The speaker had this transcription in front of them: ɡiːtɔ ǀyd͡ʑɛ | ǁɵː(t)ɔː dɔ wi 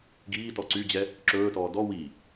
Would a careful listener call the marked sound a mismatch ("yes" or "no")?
no